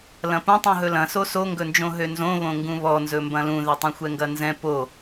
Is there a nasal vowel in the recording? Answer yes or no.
yes